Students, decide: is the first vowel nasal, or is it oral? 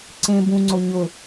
nasal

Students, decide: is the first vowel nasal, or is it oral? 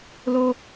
oral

